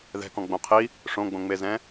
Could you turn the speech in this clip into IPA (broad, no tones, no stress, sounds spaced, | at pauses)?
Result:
ð ɛ̤ k ɔ̃ ɡ͡b õ qʰ i | ʂ õ ɡ͡b õ ŋ͡m e z ɛ̃